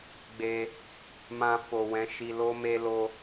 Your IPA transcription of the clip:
ɡ͡b e˧ | m ã˧ f o˨ w ɛ̃˨˦ ʃ i˧ l o˦ m e˦ l o˦

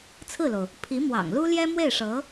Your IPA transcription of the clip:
t͡sʰ ɹ̩˥˩ l o˩ ʊ̯ | pʰ i˧˥ m w ɑ̰˨˩ ŋ l u˥ l j ɛ˥ m w e˥˩ ɪ̯ ʂ ɤ˧˥

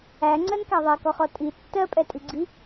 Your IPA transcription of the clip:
æ ŋ͡ǀ ɜ n k æ ðˤ ɛ k ɔ χ ɔ tʼ i tː ɜ pʼ ɛ tʼ i ɡ͡ǀ i

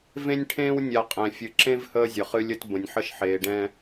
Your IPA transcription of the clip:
v ẽ˦ nʲ ʈʰ ẽː˦ w nʲ a˨ qʼ ɛ̃˨ fʲ ɨ˨ ǁ ẽ˦ v h əː˦ zʲ ə˨ χ ɨ˦ lʲ ə˦ t b ə̃˨ nʲ ħ ə˦ ʃ ħ eː˨ ɖ ɛ̃ː˦

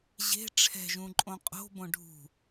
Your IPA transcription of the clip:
ʑ e̤ ʈ͡ʂʰ ɛ̤ ʒ ũ ǃʼ õ qʼ o̤ b õ ɖʱ ṳ

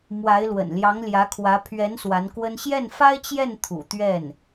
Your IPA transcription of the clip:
m w a˧˥ ɪ̯ l w ə̰˨˩ n l j ɑ˧˥ ŋ l j ä˧˥ kʰ w ä˧˥ pʰ ɥ ɛ˧˥ n s w a˧˥ n k w ə˥ n ɕ j ɛ˥˩ n f a˥ ɪ̯ t͡ɕ j ɛ˥˩ n t̪ʰ ṵ˨˩ t̪ ɥ ɛ˥˩ n

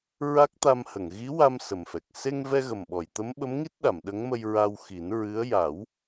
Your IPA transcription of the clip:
ɹ a˦˥ k̚ t̪ a˧ m h ə˨˩˨ ŋ ɣ i˧˥ w a˧ m s ə˨˩ m f ɛ˨˩ k̚ s e˧ ŋ v ɛ˧ ɣ ə˨˩ m ɓ ɔ˨˩˨ j t̪ ə˧˥ m ɓ ə˧˥ m ŋ i˦˥ t̚ ɗ a˨˩˨ m ɗ ə˧˥ ŋ m ə˧ j ɹ a˧ w x i˨˩˦ n ɹ ɨ˧˥ ə̯ j a˨˩˦ w

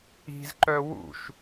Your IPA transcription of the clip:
i̤ z ǃ œ w ṵ ʃ

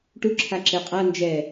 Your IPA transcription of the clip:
ʈ u ǁʰ a ǁ e qʼ a n d͡ʒ ɛ

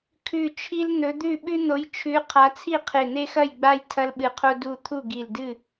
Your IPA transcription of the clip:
kʰ ʉ˧˩ t͡ʃʰ i˦ l n̪ ɵ˨˦ d̪ ʉ˥˨ ɓ ʉ˦ n̪ o˨˦ j t͡ʃʰ ʉ˨˦ qʰ a˨˦ t͡sʰ i˥˨ qʰ e˧˩ n̪ e˦ x ɐ˥˨ j ɡ͡b a˦ j tʰ ɐ˦ l ɓ ɨ˧˩ qʰ o˦ d u˧˩ t̪ʰ u˥˨ ɡ i˧˩ l d ɨ˥˨

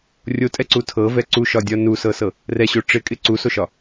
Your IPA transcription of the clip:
rʲ o tʼ ɛ ǀ u tʰ ɤ v ɛ ǀ u ʃ ɒ dʲ ɒ n u s ɤ s ɤ | r ɛ ɕ o ʈ͡ʂ ɪ kʼ ɪ ǀ u s o ʃ ɒ

